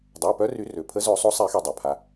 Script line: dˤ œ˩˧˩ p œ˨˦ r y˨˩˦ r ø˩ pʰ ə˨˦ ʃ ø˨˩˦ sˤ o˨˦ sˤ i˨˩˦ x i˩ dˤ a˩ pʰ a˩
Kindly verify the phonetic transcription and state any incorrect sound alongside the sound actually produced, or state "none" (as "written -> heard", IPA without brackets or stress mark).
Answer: ʃ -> z